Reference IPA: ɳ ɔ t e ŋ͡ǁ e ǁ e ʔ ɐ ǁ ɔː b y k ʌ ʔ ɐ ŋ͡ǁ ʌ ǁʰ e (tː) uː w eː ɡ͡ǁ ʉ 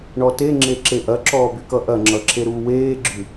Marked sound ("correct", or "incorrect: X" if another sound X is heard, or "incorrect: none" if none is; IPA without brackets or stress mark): incorrect: ɾ